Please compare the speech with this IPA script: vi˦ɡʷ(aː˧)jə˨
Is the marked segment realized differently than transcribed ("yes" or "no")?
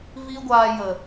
no